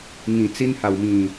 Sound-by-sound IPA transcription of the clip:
ŋ ĩ˨˩ t͡s i˧ n h a˨˩ w m ĩ˨˩

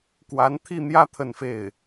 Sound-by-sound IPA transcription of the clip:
k w a˧˥ n t̪ʰ i˥˧ n̪ j ä˥˧ t̪ʰ ə˥˧ n f e˥˩ ɪ̯

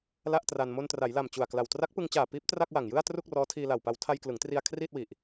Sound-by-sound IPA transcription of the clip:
l a˥˩ ʔ t r a˧ n m o˧ n t r a˩˦ j l a˨˩ m t͡ɕ u˨˩ a̯ k l a˨˩ w t r a˦˥ k̚ p ɯ˧ ŋ t͡ɕ aː˨˩ p iː˦˥ p̚ t r a˥˩ k̚ w a˨˩ ŋ j ɯ˥˩ a̯ t r u˥˩ k̚ r ɔː˦˥ tʰ iː˧ l a˨˩ w p a˧ w tʰ a˧ j k l ɯ˩˦ ŋ t r i˧ a̯ kʰ r iː˥˩ t̚ w i˨˩ ʔ

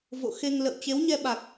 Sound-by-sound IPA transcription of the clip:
v o̰˧˨ x e˧ ŋ l ə̰˧˨ w t͡ɕ e˨˦ w ɲ ɛ˧ ɓ a˨˩ k̚

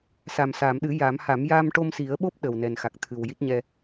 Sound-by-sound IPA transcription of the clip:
s a˨˩ m s aː˨˩˨ m ɗ ɨ˨˩˦ j a˨˩˦ m h a˨˩˦ m j aː˧ m ʈ o˧ m s i˨˩˦ ə̯ ɓ o˦˥ p̚ ɗ ə˨˩ w n ɛ˨˩ n x a˨˩ k̚ t̪ʰ ɨ˨˩ w j i˦˥ t̚ ɲ ɛ˧

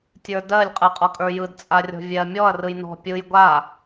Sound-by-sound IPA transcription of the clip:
tʲ ə˞ d ɜ lʲ qʼ ɯ qʼ ɔ kʼ ə˞ j ɯ d t͡sʼ a rʲ ɔ̤ vʲ ɛ ɐ̯ mʲ ɔ ɐ̯ r ɯ j n ɔ̤ pʲ ɯ j ɡʷ a

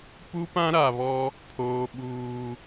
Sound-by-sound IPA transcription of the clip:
p u˦ p ã˦ ɾ a˨ β ɔ˦ | pʰ oː˦ ɓ uː˦

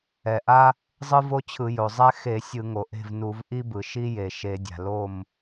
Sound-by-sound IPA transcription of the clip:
ɛ˩ ʔ a˥ | zˤ ɯ˥ v o˥ t͡ɕʰ ɯ˧˩˧ j o˩ zˤ ɛ˥ x e˧˩˧ sʲ ɯ˧˩˧ ŋ o˩ ʔ e̤˥˨ v n u˧˩˧ v ʔ i˥ b ɯ˩ ʃ i˥ j e˩ ʃ e˧˩˧ dʲ a̤˩ l o˥˨ m

